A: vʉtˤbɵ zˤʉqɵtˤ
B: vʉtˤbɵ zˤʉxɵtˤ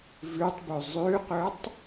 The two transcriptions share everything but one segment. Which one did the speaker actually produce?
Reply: A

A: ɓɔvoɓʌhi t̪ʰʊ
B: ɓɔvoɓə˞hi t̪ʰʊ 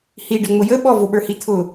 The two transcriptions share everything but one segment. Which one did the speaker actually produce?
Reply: B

